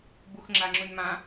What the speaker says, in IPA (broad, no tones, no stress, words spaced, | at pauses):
buxŋ͡ǁaŋ͡ǁunmã